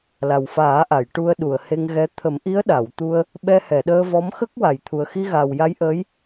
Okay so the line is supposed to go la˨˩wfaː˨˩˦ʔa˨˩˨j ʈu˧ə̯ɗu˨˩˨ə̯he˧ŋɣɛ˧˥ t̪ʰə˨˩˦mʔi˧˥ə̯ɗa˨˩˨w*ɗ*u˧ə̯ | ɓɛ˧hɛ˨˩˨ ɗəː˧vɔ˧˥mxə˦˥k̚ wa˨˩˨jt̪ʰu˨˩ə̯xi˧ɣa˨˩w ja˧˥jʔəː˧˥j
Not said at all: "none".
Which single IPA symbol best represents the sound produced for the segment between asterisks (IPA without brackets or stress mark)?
t̪